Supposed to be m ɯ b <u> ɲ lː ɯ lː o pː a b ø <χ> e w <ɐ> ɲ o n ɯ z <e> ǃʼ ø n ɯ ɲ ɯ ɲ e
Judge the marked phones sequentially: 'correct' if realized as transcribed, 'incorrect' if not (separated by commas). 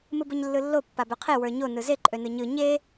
incorrect, incorrect, incorrect, correct